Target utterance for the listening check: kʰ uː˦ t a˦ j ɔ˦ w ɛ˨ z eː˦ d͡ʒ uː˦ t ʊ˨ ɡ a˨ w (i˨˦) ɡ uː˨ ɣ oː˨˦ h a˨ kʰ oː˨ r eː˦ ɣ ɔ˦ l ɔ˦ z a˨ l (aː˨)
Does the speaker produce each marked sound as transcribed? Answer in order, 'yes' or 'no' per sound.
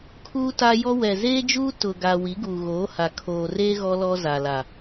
yes, no

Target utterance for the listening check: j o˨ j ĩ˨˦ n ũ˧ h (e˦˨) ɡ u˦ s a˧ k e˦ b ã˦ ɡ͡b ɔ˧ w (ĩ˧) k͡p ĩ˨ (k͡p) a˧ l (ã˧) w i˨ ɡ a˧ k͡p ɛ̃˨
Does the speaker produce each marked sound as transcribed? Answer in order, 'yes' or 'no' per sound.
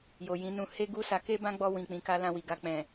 no, no, no, yes

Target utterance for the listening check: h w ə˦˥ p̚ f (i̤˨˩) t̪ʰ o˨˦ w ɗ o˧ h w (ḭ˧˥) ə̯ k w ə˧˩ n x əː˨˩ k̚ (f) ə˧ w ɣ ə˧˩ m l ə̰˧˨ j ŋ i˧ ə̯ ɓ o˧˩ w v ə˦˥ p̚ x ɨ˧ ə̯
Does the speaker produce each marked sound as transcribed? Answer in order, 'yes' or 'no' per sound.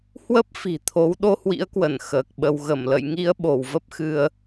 yes, yes, no

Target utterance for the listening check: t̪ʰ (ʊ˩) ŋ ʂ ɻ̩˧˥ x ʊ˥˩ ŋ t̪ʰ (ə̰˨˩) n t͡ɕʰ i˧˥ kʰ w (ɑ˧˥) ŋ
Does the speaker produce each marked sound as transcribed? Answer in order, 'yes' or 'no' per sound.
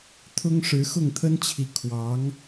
no, no, yes

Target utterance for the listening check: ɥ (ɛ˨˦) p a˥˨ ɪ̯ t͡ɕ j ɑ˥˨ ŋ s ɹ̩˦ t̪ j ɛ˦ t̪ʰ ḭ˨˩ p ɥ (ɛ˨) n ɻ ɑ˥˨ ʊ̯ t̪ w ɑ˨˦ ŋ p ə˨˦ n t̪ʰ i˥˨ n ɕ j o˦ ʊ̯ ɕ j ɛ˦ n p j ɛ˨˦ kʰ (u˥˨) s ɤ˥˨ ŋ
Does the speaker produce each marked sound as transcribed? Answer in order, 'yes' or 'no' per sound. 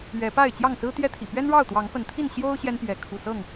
yes, no, no

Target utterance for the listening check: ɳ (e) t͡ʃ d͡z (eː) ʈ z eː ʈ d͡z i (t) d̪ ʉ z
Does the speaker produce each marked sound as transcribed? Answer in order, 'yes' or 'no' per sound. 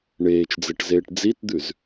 no, no, yes

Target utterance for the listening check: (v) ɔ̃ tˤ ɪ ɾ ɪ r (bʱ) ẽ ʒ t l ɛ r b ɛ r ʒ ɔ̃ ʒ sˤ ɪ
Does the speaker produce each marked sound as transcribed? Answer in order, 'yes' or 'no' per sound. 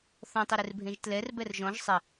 no, yes

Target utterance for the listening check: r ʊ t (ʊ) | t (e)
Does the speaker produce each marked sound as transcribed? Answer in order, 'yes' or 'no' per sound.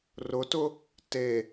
yes, yes

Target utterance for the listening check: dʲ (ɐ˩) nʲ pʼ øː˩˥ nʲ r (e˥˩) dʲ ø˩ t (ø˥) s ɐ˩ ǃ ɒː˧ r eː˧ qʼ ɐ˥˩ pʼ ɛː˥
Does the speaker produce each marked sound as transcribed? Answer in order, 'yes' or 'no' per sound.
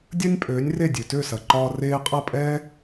no, yes, no

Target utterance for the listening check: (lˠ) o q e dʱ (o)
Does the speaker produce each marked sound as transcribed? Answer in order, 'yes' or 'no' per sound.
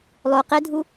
yes, no

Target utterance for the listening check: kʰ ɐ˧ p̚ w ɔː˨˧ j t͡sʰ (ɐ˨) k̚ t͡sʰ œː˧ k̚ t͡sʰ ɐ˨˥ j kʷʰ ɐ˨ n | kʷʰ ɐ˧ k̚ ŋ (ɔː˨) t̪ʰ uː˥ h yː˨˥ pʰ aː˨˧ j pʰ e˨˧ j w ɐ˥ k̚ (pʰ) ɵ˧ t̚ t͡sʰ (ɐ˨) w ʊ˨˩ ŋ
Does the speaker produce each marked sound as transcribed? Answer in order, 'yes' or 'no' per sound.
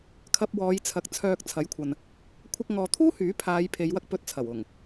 yes, yes, no, no

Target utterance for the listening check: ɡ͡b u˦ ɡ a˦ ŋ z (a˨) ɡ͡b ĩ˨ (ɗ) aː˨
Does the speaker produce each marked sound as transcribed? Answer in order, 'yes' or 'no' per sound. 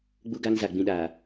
yes, yes

